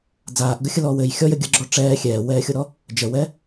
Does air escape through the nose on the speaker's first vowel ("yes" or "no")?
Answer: no